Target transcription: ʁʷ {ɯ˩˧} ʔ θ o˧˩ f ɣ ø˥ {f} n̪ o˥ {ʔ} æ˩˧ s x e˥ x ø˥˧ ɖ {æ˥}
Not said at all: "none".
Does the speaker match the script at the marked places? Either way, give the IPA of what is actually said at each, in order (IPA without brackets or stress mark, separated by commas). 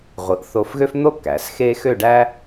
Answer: ɯ˩˧, f, k, æ˥